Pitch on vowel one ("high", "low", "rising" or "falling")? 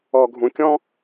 low